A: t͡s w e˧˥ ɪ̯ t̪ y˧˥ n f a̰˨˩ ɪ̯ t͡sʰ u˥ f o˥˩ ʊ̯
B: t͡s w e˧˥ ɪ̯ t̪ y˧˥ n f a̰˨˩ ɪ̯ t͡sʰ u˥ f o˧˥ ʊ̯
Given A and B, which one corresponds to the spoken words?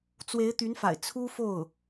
A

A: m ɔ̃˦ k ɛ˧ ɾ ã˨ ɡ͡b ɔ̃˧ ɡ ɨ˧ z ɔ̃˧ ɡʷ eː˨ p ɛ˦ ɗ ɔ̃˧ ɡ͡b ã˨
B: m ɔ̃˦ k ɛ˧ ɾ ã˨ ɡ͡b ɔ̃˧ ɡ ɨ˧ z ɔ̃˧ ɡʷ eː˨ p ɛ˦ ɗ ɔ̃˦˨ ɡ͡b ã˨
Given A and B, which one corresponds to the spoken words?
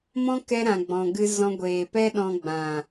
A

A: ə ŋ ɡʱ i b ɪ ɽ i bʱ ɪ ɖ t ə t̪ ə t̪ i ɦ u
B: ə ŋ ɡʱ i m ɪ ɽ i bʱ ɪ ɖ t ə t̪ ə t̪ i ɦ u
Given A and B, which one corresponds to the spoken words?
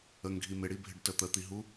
B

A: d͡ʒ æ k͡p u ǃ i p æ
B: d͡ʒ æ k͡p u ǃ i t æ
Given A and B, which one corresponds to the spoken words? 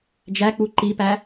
A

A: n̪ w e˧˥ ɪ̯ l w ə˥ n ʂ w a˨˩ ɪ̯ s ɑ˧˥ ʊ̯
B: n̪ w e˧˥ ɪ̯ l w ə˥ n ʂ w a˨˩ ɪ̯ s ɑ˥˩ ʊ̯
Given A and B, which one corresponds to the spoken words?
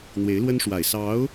A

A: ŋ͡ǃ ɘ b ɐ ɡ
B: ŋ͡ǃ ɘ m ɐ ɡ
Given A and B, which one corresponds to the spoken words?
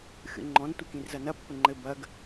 A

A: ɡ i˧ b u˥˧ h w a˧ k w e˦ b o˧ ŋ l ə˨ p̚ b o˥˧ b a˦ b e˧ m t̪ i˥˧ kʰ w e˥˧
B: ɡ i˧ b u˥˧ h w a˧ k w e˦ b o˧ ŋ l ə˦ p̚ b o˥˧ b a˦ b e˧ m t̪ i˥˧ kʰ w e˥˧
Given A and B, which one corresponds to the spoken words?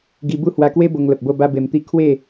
A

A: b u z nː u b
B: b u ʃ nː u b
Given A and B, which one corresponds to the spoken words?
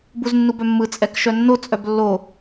A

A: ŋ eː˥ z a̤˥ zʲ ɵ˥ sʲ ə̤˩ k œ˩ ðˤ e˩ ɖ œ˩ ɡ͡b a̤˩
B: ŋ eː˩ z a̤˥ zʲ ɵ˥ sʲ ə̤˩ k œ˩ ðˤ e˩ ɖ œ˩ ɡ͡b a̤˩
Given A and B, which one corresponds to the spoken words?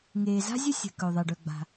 B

